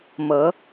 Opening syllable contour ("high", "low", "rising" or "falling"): rising